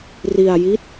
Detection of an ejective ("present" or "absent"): absent